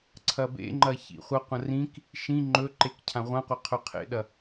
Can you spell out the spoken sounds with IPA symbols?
ǀʰ ɐ b ḛ ŋ͡ǃ ɐ ç ḭ χʷ ɐ qʷ ɐ̃ r ĩ k | ʃ ĩ ŋ͡ǃ ɵ ǃ e k cʰ ã ʁʷ ã qʷ a qʰ ɵ qʰ ḛ ɗ ɐ

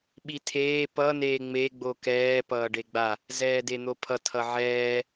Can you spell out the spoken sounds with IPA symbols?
ɓ i tʰ eː p ʌ n eː ŋ͡m e ɡ͡b o k ɛː p ʌː ɖ e ɡ͡b a | z ɛː d e n̪ o pʰ ʌ tʰ ʌ ʕ ɛː

